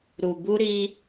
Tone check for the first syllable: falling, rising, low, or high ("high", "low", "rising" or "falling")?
low